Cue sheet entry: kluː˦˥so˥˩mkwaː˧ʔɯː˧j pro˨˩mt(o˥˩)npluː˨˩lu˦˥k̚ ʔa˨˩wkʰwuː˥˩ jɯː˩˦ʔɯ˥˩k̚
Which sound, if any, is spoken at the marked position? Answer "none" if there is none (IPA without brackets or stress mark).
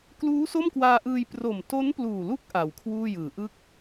o˦˥